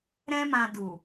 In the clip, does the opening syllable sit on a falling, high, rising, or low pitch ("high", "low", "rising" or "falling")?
high